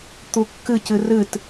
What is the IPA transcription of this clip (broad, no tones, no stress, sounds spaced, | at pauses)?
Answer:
t̪ u kː ɨ c ɨ r ɨ t